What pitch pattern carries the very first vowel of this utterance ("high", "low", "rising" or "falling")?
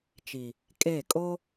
low